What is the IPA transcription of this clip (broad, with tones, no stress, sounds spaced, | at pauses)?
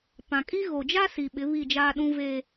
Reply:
p ã˨ kʼ i˦ ɣ o˨ d͡ʒ a˦ s i˨ ɓ ɪ˨˦ β i˦˨ d͡ʒ aː˦ ɗ ũ˦ v eː˦